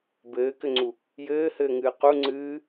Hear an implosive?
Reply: no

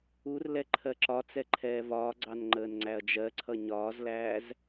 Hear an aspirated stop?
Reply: yes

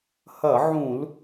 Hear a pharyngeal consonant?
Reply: yes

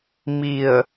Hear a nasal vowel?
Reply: no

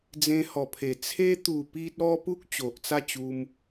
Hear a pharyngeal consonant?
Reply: no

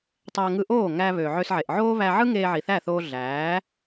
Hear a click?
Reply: no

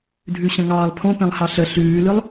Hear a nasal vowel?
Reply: yes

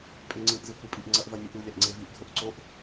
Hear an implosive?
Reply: no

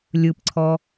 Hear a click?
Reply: yes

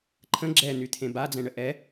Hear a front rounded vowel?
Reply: yes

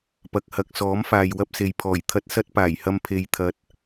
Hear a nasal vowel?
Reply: no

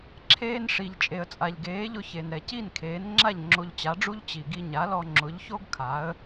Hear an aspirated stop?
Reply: yes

